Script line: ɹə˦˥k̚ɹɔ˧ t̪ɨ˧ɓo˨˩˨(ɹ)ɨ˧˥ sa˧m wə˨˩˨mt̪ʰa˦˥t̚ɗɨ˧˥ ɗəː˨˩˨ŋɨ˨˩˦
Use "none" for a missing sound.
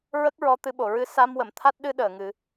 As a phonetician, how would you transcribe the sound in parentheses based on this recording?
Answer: ɹ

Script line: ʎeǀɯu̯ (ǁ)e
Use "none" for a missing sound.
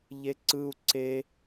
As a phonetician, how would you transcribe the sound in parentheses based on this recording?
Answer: ǀ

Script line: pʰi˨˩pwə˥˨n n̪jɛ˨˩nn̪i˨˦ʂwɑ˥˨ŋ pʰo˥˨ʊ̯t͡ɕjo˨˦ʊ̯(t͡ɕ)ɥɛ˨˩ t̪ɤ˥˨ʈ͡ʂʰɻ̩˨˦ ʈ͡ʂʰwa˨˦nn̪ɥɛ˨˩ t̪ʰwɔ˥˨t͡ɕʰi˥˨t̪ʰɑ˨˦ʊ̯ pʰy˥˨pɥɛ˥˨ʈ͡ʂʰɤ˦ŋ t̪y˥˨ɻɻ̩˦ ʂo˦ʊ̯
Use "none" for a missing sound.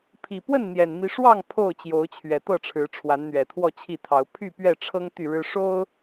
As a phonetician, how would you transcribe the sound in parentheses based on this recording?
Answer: t͡ɕʰ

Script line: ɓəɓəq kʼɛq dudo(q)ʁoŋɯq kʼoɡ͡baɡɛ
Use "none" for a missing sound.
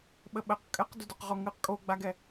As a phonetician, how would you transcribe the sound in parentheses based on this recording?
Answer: q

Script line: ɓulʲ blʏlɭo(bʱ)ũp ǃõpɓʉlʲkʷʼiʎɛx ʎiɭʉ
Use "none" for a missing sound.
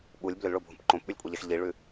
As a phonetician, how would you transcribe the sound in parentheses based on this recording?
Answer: bʱ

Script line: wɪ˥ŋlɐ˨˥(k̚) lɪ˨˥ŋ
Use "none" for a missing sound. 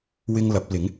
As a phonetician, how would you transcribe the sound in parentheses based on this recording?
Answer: p̚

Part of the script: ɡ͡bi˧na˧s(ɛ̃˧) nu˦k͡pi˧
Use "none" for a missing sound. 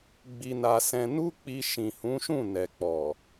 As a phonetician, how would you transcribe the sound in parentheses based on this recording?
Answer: ɛ̃˧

